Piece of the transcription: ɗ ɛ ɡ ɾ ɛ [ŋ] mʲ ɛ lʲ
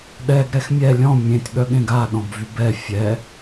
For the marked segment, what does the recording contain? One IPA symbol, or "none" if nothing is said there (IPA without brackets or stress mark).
x